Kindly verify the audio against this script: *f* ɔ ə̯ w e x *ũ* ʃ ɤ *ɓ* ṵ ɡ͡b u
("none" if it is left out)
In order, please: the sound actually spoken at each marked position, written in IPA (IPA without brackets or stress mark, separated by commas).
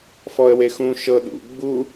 f, ũ, ɗ